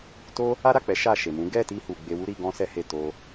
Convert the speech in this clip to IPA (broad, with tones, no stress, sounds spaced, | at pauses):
t o˦ | a˦ ɾ a˦˨ k͡p ɛ˨˦ ʃ a˦˨ ʃ e˨ m ũ˨˦ ɡ ɛ˦˨ t i˧ h u˨ ɡ͡b e˧ w u˦ ɾ i˧ ɡ ɔ̃˦ s ɛ˦ h e˦˨ t o˧